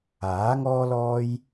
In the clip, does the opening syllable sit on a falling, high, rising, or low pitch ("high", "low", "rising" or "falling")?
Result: rising